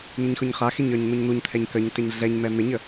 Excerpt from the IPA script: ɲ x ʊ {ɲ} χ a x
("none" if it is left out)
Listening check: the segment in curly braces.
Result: ɲ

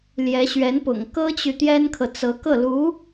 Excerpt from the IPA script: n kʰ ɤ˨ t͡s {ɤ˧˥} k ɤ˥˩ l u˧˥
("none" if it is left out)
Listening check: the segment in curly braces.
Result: ɤ˧˥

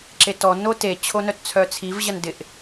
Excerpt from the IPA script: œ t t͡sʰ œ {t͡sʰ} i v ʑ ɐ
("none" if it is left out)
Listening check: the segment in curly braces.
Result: t͡sʰ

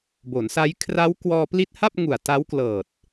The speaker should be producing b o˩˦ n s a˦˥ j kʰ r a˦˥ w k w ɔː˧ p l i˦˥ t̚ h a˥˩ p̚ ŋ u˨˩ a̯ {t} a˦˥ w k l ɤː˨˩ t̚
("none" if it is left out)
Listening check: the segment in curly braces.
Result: t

